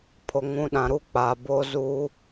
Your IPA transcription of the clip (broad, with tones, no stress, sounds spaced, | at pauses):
pʰ o˨ ŋ ũ˨˦ ɗ ã˨ ɾ u˦ k͡p a˨ b o˦ z u˦